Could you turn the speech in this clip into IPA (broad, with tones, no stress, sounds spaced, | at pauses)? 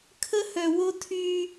kʰ ə˦ h œ˨ w o˦ tʰ y˦